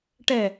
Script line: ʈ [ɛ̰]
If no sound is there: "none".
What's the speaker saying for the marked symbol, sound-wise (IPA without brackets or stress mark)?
ɛ